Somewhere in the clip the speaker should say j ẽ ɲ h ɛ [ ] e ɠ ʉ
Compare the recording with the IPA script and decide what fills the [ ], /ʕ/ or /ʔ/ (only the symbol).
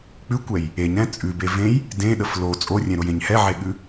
ʕ